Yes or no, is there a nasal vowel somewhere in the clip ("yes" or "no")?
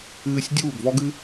no